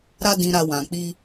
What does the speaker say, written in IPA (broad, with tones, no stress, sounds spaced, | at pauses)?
ɾ a˧ d ĩ˨ ɾ a˨ w ã˨ k͡p i˧